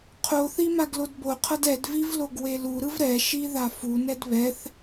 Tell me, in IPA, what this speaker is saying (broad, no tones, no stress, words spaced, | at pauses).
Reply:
qʰoθi maɡlodboqʰʌd ɛdviv loɡweluɾɯv ɾɛʃi ðafunɛd βɛθ